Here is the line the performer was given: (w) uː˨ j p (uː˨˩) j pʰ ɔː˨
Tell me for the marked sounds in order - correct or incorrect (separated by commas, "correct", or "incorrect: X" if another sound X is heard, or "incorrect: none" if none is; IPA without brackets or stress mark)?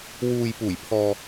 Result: correct, correct